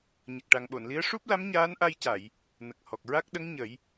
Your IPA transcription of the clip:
ɲ ə˨˩ k̚ ʈ a˨˩ ŋ ɓ o˨˩˨ n l i˧˥ ə̯ ʂ u˦˥ p̚ l a˧˥ m ɲ aː˧˥ n ʔ a˧ j c a˨˩˨ j | n ə˨˩ k̚ h ɔ˨˩ k̚ ɹ a˦˥ k̚ ɗ ə˧˥ ŋ ɲ ə˨˩˦ j

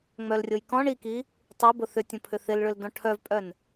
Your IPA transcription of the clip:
ŋ͡m œ l rʲ o j k ɔ̃ ɳ i k i | tˤ o b ʊ θ ʏ tʲ õ pʰ ʏ θ ɪ l ɭ ʏ l d ɔ̃ ʈʰ œ v pʼ œ n

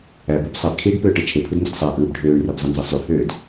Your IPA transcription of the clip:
æ b ø b sˤ æ b kʰ iː ɖ p øː ʈ ɯ t͡ʃʰ e pʰ ɯ d n d y d sˤ æ ʔ ɯː b ɖʱ øː ɳ r e b zˤ ɯ n z ɯ sˤ y h øː d

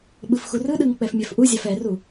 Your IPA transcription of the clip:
ɓ ɯ f x u r ɯ ɗ ɯ ŋ k͡p ɛ f mʲ ɛ f ʔ u zʲ a f ɛ r u

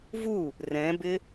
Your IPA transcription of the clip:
v u | r ɛ̃ b ɪ

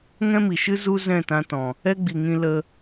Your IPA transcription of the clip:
ŋ ɛ̃˦ m i˨ ʃ ɨ˦ z u˦ z ɛ̃˦˨ t ã˧ t ɔ̃˨ | ɛ˦ ɡ͡b i˨ ŋ ĩ˧ l ə˧

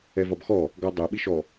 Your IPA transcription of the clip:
ɛ v ɒ b x ɔ | ɡ ɒ dˤ ɛ ɓ i ʃ ɔ

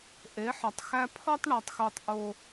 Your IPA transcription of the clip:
ʔ e˨˦ ħ ɒ˨ tˤ x æ˦ pʰ ɒ˦ tˤ ɳ ɒ˨ tˤ x o˨ tˤ ʔ o˨

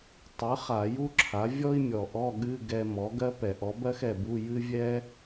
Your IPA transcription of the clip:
tˤ ɨ˩˥ χ a˧˩˧ j u˥ ǁʰ a˩˥ vʲ ɔ˥ i̯ mʲ ɔ˨˩ ʔ ɔ˧˥˧ ɠ ɨ˧˥˧ ɡ ɛ˧ m ɔ˩˥ ɡ ɜ˥ p ɛ˧˩˧ ʔ ɔ˩˥ b ɜ˥ x ɛ˨˩ b u˧˥˧ j ɨ˥ vʲ ɛ˥

